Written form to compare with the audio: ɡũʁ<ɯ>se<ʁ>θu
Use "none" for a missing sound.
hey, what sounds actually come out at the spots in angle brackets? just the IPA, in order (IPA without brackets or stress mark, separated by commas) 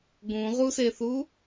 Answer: u, none